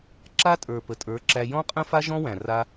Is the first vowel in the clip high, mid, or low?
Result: low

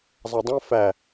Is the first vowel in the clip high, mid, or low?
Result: low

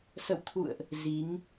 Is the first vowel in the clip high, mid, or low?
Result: mid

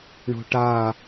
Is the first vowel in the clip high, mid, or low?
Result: mid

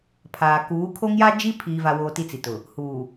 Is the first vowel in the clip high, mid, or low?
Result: low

